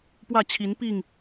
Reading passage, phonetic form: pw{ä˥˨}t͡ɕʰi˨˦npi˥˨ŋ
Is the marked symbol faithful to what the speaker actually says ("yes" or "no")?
yes